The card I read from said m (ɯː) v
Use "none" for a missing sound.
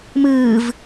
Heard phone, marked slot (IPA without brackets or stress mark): ɯː